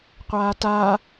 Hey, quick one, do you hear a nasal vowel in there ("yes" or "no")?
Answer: no